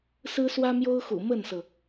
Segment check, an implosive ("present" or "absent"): absent